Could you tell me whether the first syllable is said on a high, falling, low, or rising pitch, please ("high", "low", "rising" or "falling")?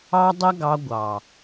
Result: high